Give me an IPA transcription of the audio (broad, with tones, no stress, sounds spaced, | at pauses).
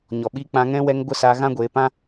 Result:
ɲ ɔ˨ ɓ iː˧ k͡p ã˧ ŋ ɛ̃˧ w ɛ˧ ŋ ɡʷ ə˦˨ s aː˧ ɣ ã˦ ɡʷ e˧ p ã˦